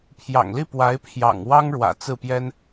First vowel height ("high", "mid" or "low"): low